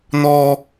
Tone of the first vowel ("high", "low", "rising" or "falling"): high